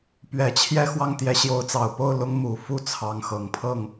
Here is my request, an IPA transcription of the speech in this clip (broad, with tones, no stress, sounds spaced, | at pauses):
p ɥ ɛ˨˩ t͡ɕʰ j ɛ˥˧ x w ɑ˥˩ ŋ t̪ j ɛ˧˥ ɕ j o˧˥ ʊ̯ t͡s ɑ˨˩ ʊ̯ p o˥˩ ʊ̯ l ʊ˥ ŋ m u˨˩ f u˥˩ t͡sʰ ɑ˧˥ ŋ x ɤ˨˩ ŋ pʰ ɤ˥˩ ŋ